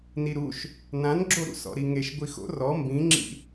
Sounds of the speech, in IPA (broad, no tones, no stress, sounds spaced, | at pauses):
n i ɾ u ʃ | n ã n ɡ͡ǁ o ɾ ṵ s ɔ̰ ɾ i ŋ e ʃ ɡʷ i x o̰ r ɔ m b ĩ ŋ͡ǁ ḭ